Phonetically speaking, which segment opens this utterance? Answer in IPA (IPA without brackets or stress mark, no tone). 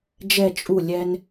d͡ʒ